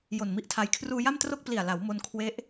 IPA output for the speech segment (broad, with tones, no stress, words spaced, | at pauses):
jo˨˩nmi˦˥ʔtʰa˧j kʰruː˧ja˥˩mtro˥˩k̚ pli˨˩a̯la˩˦w mo˧n kʰwe˦˥ʔ